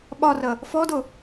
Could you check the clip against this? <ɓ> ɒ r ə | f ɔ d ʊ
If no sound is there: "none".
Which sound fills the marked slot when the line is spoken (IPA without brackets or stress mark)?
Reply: ɓ